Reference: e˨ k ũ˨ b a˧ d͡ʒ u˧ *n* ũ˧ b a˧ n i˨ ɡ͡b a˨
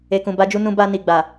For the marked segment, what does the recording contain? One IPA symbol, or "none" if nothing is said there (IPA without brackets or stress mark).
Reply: n